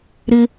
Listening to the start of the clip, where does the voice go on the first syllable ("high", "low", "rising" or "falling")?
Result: high